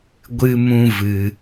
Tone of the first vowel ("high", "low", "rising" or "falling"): high